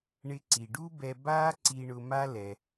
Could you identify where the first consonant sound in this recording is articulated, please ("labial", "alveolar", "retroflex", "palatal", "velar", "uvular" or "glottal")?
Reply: retroflex